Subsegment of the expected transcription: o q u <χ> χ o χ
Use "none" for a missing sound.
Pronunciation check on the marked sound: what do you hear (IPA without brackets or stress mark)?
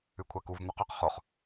q